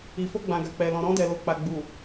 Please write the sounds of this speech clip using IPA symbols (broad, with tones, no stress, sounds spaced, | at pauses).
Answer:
i˨ f o˧ ɡ͡b ã˨ ɡ a˨ k͡p ɛ˨ l ɔ̃˨ ɾ ɔ̃˧ d ɛ˨ l o˨ k͡p a˨ ɡ͡b u˨